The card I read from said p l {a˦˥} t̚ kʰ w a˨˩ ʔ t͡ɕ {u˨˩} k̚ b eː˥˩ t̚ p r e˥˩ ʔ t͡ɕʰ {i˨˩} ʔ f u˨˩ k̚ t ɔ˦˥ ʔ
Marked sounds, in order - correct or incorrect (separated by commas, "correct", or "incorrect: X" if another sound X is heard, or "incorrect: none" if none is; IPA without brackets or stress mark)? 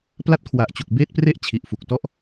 correct, correct, correct